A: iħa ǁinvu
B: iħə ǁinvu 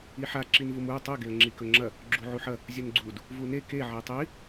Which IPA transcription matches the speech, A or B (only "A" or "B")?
A